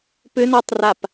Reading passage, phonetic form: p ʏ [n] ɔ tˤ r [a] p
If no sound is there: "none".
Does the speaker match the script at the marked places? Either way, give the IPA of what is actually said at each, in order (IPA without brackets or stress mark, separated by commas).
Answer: n, a